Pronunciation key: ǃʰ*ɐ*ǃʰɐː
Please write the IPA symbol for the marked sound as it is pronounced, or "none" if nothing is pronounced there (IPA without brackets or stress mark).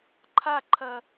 a